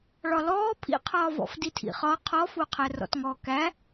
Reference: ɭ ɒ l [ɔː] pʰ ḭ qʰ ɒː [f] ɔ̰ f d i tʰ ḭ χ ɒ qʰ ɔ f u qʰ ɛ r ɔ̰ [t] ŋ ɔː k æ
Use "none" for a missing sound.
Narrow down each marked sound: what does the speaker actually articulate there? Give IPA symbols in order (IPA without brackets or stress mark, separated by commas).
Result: ɔː, v, t